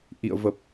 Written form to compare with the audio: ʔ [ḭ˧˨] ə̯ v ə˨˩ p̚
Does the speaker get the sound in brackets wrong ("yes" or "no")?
no